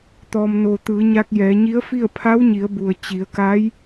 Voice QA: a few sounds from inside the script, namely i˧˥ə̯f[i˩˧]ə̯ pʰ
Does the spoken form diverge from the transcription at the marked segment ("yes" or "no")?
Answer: yes